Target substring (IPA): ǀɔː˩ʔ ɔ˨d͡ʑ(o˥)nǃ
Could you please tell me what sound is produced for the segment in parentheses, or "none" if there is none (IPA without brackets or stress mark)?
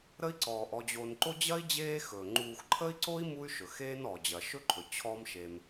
o˨